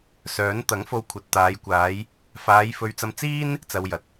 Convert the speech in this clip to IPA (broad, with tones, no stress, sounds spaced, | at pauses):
s œː˨˥ n t̪ ɐ˨˥ ŋ f o˧ w kʷʰ ɐ˨ t̚ t̪ aː˨˧ j kʷ aː˨˧ j | f aː˨˧ j f ɵ˧ ɥ t͡s ɐ˧ m t͡s iː˥ n | t͡s ɐ˧ w j ɐ˨˥ t̚